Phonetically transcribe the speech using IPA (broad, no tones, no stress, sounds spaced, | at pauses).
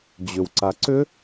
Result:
d͡ʑ ʏ w ǀ a ǀ ʏ